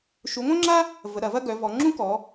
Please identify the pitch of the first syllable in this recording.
rising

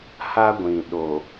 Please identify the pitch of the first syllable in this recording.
high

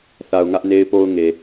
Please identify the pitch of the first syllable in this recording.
low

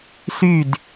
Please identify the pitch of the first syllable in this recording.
falling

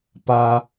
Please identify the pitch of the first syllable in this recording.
high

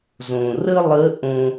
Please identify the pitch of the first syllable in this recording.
low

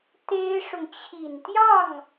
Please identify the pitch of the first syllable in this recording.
high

